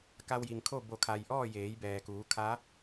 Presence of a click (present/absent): absent